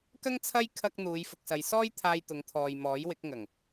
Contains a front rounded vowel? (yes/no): no